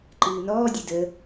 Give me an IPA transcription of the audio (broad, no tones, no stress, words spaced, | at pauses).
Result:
ǃɨːnɔːdʲɨ də